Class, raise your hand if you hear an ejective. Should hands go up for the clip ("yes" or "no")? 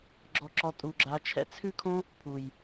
yes